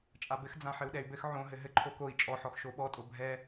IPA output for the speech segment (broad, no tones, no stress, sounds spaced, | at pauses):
t͡ʃʼ a b ɘ x d͡z ã ħ ɘ u̯ ɗ ɛ y̯ b ɘ x ʕ õ ɦ ɘ ɦ ɘ ǃʰ o k o i̯ t͡ʃʼ ɔ ħ ɔ x ʃ o ɓ ɔ tʼ o bʱ ɛ